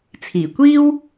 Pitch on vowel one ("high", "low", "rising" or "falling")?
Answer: low